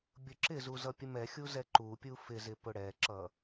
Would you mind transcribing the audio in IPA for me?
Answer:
bʲ ʊ ǁ ɪ z u z ʌ pʲ ə m ɛ xʲ u z ɛ ǃ u pʲ u f ɪ z ɪ p ʊ ɽ ɛ ǁ ʌ

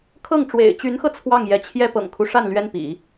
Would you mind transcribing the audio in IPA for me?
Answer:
kʰ ɤ˥˩ ŋ ʈ͡ʂ w ḛ˨˩ ɪ̯ t͡ɕ y˧˥ n x ɤ˧ t͡sʰ w ɑ˥˩ ŋ j ɛ˧˥ t͡ɕʰ j ɛ˥ p ɤ̰˨˩ ŋ kʰ u˦ ʂ a˥˩ n l ɥ ɛ˥ n p ḭ˨˩˦

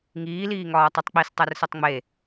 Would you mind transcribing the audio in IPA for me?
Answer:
ŋ iː l iː ŋ ɒː tˤ i tˤ k͡p i s tˤ æ r s o tˤ ŋ͡m e

